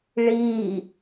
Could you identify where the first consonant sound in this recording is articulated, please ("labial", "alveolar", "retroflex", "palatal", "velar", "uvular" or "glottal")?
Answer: retroflex